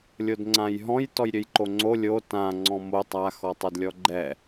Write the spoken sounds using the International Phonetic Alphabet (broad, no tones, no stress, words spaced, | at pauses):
lʲodŋ͡ǀãjɦɔ̃j tɔjɾʲøjǃoŋ͡ǀo lʲo tã ŋ͡ǀɔ̃mo tˤa xɔtˤødlʲɔɡ͡ǃɛ